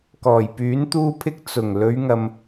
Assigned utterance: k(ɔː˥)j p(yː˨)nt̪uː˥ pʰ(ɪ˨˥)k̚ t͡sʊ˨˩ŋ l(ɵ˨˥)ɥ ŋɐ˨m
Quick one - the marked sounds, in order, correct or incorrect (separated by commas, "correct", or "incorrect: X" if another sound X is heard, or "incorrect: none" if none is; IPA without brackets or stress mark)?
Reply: incorrect: ɔː˨˩, incorrect: yː˨˥, incorrect: ɪ˥, incorrect: ɵ˨˧